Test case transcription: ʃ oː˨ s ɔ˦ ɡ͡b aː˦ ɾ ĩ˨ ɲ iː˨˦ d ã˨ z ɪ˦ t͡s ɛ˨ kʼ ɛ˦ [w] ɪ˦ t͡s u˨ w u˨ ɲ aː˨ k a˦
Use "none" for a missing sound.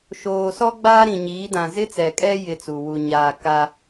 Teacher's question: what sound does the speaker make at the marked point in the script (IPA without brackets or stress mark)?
j